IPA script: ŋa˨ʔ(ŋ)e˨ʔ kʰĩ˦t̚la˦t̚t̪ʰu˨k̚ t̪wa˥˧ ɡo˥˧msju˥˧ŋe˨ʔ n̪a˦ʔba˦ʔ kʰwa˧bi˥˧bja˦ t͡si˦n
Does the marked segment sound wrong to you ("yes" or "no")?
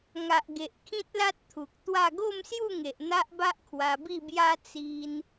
yes